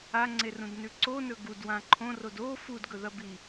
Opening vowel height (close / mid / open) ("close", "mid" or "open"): open